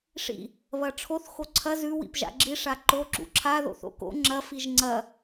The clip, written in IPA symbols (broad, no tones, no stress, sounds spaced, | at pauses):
ʂ ḭ | β ɐ ʈ͡ʂʰ o θ x o ǀʰ ɐ z ʉ w ḭ p ʒ a̰ ɡ͡ǁ i ʂ a ǃ o ǁ ṵ ǁʰ a ð o̰ θ o̰ k o̰ ŋ͡ǁ ɐ f i ʒ ŋ͡ǀ ɐ